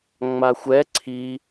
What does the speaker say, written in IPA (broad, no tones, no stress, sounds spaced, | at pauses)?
ŋ͡m a xʷ ɛ ǀʰ i